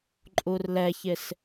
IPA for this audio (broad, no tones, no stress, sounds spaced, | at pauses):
ǃʼ u r l ɛ ç ɪ s